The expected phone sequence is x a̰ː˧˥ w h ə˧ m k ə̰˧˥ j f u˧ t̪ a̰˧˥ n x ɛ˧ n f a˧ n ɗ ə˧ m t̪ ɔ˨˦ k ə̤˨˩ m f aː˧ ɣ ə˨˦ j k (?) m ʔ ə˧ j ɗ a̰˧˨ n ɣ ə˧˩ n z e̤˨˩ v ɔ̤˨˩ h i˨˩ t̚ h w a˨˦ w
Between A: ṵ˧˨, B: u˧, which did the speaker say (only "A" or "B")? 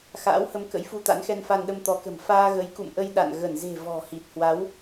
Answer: A